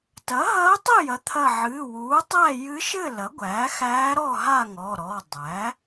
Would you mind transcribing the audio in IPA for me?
tɐ˩˥ɦɐː˧˥tˤɘ˥˨jɐ˩˥ t̪ʰɐ˧˩ʕɨː˩˧˩wuː˩˥tˤæ˥˨ jɨ˧˥ʃɘ˥˨ lɐ˩˥ɡʷæː˩˥xæː˧˥ ɾɔ˥˨ɦa˥˨ ŋɔ˩˧˩ɾɔ˩˧˩ dˤæ˩˥

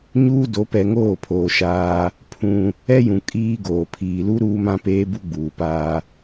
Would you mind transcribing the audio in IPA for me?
ɲuː˦do˨˦ pɛ˨ŋoː˦˨pʰoː˨ ʃaː˦ | pʰũ˦ | ɛ˦jũ˨ kʼiː˦ɡoː˨ pʰiː˨lu˦ ɾuː˦mã˦peː˦ bu˦ɡ͡buː˨paː˦

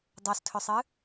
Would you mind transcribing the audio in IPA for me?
dˤostʰɵsˤɨ

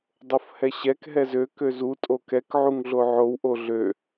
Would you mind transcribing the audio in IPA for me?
dˤofhɛɕɛk ɦɛzø køzu tʼokɛk ʕuŋɮoʕow ʔoɮø

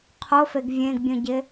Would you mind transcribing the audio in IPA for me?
qʰofeɡ vʲẽɡbʲũɟɪ

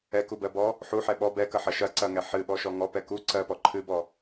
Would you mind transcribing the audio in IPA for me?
ɛkubɜbɔ | ħuħɛ ɓɔ bɛkɐħɐ ʃɐǀɐŋɛ ħɨɓɔʃɔ ŋɔpɛ ku ǀɜpɔ ǃʰɨbɔ

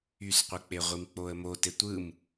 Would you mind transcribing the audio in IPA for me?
ysqʷɯk͡pe ʁʷimk͡poə̯mo tetʷɯm

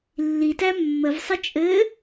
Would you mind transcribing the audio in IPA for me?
lːitæ mːəvsˤət͡ʃʼɘː

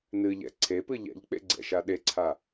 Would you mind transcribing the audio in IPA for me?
nɨʎɛ̰ ǀʰepɨ ʎɛ̰ʎk͡pḛɡ͡ǀɛ̰ʃa ɗeǀʰa

